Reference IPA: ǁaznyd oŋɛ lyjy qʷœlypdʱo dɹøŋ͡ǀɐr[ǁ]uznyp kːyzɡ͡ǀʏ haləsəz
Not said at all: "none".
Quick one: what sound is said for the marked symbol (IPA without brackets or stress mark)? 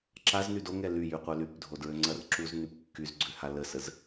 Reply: ǁ